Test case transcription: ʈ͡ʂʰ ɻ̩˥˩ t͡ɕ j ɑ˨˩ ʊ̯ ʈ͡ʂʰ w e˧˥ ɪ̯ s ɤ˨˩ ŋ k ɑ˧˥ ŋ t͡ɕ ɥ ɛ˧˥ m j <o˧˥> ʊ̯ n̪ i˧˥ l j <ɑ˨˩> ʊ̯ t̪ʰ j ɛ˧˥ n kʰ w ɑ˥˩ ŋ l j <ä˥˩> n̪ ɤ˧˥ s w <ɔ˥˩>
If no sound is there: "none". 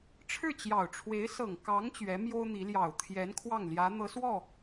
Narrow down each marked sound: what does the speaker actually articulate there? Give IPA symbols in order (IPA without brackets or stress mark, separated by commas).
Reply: o˥, ɑ˨˩, ä˧˥, ɔ˥˩